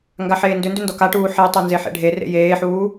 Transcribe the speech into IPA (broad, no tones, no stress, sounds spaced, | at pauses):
ŋ ɡ a ħ eː n d ʏ n d ʏ n d ɔ k a ʈ uː ħ e tˤ o n z e ħ ḛ ɖʱ e r ḛ j eː ħ uː